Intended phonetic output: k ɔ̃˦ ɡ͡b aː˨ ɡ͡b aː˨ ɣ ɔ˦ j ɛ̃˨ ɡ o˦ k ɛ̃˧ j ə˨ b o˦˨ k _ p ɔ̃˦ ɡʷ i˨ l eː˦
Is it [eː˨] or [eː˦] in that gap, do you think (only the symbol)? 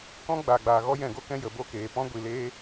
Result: eː˨